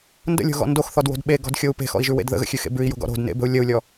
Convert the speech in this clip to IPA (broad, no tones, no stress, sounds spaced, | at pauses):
n d ə̰ lʲ o̤ ɣ ɔ̰ n d o x θ ɔ d w o̤ d ɓ e ɡ ɔ̤ d xʲ o u̯ p e̤ x ɔ̰ i̯ ʒ ʉ w ḛ d ð ə̰ ɣ ə̰ xʲ ʉ x ḛ b ʉ i̯ j o̤ ɡ ɔ̰ ɾ o̤ d n ḛ b ə̤ u̯ lʲ ə u̯ lʲ ɔ